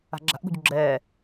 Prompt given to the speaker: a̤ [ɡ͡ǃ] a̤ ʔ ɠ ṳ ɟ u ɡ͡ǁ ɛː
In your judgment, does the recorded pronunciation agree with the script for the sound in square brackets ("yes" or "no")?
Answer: no